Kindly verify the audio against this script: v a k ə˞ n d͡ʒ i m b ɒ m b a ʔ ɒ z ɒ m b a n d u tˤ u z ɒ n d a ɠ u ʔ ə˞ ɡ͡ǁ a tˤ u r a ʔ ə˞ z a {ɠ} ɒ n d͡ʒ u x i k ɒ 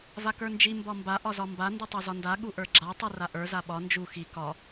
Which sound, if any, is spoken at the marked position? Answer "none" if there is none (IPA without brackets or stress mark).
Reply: ɓ